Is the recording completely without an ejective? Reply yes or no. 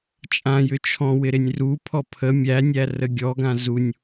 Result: no